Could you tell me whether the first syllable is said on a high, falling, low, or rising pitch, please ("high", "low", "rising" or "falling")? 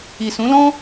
low